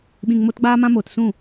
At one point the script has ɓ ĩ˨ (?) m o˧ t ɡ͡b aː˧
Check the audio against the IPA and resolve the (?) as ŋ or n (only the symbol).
ŋ